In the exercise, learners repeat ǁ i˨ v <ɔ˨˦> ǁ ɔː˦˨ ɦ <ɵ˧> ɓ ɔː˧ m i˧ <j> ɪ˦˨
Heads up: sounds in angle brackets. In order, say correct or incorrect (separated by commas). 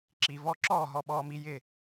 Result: incorrect, incorrect, correct